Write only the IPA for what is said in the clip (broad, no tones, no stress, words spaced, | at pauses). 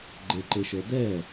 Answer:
ɡ͡ǃeǃeʃə˞ dɛ